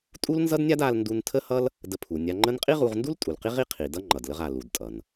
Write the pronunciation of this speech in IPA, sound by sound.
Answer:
tʼu˥lnzʌ˥dnʲa˥d a˧lndu˧n tʰə˥hʌ˥l | də˧pʰu˩ nʲa˧ŋ͡ǃə˥n qʼi˥ʁu˧ʁndu˥l tʼu˩lqi˥ʁi˥ qʰi˩dʌ˥ ŋ͡ǃʌ˩dlə˧ʁa˩lu˩d tʼʌ˩n

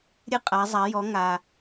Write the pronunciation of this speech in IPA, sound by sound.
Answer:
ɾʲɨ˧qʼa˩˧zˤa˩˧jɔ˩˧ ŋa˩

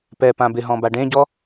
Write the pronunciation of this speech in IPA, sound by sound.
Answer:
pɛ pãbɪɦɔ̃ baɖẽɟɔ

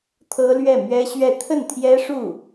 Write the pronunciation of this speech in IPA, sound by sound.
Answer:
t̪ʰɤ˥lɥɛ˥˩mɥɛ˥ɕɥɛ˥˧ t̪ʰə˥˩nt̪ʰjɛ˥ʂu˥˩

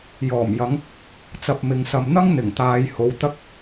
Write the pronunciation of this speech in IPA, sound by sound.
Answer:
jɔː˨˩mjɐ˨˧ŋ | t͡sɐ˧p̚mɪ˨˧ŋsɐ˧m n̪ɐ˥ŋn̪ɪ˨˩ŋt̪aː˨jho˨˧w t̪ɐ˧k̚

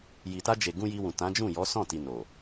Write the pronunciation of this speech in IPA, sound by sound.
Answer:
ji˨ta˧d͡ʒe˨ ɡũ˧ji˧wũ˨ tã˨˦d͡ʒũ˦˨jɔ˨˦ sɔ̃˦˨ti˨ no˨

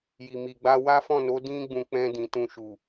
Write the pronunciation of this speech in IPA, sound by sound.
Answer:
ji˨ mi˨ɡ͡ba˧ wa˦fɔ̃˦˨no˨˦ dĩ˦ɡ͡bũ˧ k͡pɛ̃˧ dĩ˨tũ˧ʃu˨

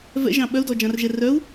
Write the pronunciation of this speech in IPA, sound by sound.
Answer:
vɛ̰ʒɑ̃ ɓœu̯dɔd͡ʒɑ̃rʒɛ rœu̯

